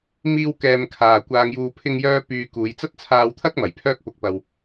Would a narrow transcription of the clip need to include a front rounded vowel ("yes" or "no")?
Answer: yes